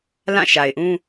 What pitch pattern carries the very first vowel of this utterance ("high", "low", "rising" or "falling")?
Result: falling